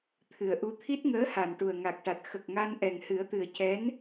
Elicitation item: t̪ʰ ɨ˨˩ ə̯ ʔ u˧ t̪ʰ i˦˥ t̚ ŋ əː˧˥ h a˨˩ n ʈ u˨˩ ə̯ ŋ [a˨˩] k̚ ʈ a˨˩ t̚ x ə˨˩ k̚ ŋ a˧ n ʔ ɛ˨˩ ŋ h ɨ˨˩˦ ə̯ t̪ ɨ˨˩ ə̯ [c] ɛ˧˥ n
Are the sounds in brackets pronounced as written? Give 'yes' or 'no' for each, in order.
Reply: yes, yes

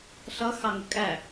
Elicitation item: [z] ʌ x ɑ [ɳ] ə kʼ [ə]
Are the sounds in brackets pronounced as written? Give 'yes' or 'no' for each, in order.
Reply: no, no, no

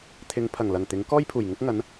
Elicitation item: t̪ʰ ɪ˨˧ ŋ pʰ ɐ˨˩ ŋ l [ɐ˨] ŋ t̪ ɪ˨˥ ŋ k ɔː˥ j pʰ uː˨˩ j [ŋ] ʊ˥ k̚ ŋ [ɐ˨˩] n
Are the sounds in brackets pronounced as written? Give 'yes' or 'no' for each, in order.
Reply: no, yes, no

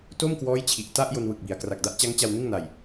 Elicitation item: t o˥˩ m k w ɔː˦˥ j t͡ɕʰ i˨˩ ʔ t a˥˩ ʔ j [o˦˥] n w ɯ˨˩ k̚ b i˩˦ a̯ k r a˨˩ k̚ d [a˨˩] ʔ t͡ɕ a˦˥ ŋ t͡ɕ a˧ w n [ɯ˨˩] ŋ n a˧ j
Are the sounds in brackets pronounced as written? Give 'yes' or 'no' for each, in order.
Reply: no, no, no

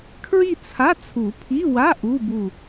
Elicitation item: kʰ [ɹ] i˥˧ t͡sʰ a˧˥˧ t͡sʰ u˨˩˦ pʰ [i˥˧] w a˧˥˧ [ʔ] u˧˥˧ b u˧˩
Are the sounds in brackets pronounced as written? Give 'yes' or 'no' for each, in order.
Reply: yes, no, yes

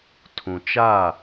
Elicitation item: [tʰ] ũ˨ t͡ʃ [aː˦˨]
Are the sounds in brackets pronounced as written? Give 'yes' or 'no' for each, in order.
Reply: yes, yes

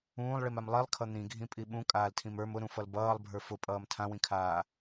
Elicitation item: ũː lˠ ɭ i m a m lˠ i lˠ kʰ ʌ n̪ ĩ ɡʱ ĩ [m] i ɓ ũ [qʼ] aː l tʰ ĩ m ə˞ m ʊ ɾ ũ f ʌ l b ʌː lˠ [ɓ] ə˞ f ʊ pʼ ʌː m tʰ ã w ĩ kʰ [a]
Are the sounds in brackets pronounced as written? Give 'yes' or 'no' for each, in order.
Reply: no, no, no, no

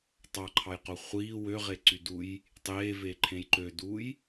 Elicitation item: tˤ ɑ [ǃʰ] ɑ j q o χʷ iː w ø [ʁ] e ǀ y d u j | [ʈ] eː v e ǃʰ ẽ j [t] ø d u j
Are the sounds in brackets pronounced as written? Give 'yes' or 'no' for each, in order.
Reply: yes, yes, no, no

